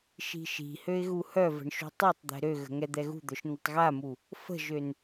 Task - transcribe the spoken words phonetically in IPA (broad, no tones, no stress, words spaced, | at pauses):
ʃi̤ʃi̤ høɪ̯ɣuhœ və̤ɳʃṳtˤutˤd̪ɛ̤ ɾøɣə̤ ŋɛd̪ɛɣṳd̪œʃ n̪ətˤɣamu | fə̤ʒøn